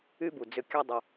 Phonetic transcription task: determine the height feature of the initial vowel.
high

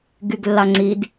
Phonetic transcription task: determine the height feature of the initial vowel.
high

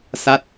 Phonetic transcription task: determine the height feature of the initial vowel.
low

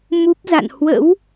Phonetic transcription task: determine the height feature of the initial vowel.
high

